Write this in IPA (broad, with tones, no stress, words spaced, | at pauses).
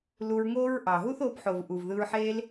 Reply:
lu˧ɹŋoː˦ɹʔɑ˨ ɦu˦θoː˧bħo˨v ʔuː˨vðɯː˧ɹħeː˦l